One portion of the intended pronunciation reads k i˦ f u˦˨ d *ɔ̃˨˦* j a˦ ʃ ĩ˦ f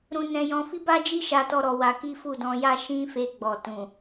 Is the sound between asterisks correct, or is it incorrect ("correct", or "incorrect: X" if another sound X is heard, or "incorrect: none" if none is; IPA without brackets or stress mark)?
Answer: incorrect: ɔ̃˧